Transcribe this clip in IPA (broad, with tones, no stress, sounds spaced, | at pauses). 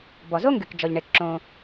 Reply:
b ɔ˩ z o˥ ŋ ɡ y˩ k d͡ʒ ɔ˩ ʎ ɳ e˩ k ǁ õ˩